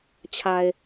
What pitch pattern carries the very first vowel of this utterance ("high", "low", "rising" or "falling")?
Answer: low